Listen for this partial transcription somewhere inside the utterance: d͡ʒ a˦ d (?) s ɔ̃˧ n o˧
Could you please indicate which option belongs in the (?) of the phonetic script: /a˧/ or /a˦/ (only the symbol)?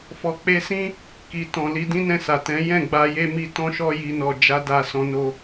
a˧